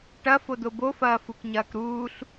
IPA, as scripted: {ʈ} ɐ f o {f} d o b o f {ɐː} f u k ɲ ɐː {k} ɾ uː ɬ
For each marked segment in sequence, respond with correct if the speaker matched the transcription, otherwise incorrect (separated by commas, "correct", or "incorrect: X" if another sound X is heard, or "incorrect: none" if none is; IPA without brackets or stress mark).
correct, incorrect: none, correct, correct